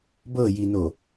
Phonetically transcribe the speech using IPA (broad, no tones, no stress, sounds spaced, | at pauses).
b ɤ j i n o